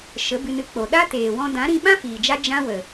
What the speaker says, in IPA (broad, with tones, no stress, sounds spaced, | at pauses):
ʃ ə˨˦ b ɨ˧ n ɨ˧ k͡p o˨ ɗ a˦ t eː˨ w ɔ̃˧ d ã˨˦ ɾ ĩ˧ ɓ ã˦ f iː˨ d͡ʒ a˦ d͡ʒ ã˦ w ə˨